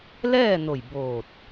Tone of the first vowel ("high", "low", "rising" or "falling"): falling